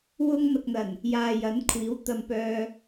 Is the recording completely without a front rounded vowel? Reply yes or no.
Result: no